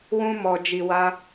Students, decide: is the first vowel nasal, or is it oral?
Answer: nasal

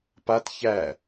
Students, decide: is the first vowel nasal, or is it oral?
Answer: oral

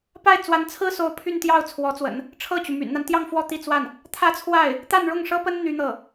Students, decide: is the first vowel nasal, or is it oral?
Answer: oral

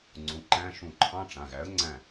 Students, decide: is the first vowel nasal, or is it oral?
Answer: nasal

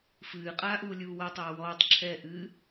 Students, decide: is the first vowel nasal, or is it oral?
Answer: oral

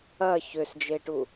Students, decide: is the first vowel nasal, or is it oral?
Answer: oral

